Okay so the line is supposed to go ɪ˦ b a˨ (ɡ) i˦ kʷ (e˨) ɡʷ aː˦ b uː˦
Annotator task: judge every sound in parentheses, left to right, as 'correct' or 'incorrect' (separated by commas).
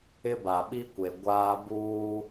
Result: incorrect, correct